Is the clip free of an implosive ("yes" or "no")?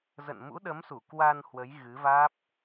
no